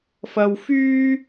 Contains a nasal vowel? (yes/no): no